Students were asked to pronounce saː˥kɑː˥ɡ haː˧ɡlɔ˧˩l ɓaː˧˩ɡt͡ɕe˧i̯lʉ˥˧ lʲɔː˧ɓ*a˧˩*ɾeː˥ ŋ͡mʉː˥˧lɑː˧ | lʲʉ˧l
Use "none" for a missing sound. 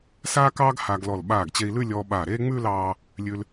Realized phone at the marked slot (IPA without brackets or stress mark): aː˧˩